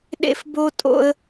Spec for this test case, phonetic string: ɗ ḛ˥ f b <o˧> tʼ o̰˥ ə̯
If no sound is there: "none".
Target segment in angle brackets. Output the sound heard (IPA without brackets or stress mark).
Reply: o˥